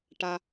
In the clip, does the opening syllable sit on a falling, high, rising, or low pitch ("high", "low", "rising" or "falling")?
low